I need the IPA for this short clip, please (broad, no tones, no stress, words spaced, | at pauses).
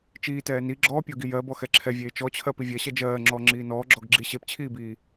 t͡ʃiː tɛːni ɡ͡ǁɔpʲɔ ɡijɜ bɔxɛǁʰɛvʲeː t͡ʃɔt͡ɕʰɜ pivʲɜɕɛ d͡ʒɜːŋ͡ǁɔː ŋ͡ǁiːnɔː ɡ͡ǁɔɡɡ͡ǁi ɕept͡ɕʰiːbiː